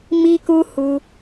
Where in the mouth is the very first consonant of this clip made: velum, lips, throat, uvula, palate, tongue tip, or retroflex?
lips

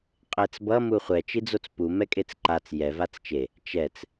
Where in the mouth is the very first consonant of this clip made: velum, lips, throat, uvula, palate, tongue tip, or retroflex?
uvula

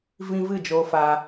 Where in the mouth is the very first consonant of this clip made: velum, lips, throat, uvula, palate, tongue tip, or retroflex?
lips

